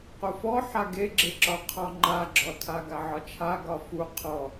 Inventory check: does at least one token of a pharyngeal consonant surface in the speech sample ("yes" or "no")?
yes